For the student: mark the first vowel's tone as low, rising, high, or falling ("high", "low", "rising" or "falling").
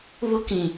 high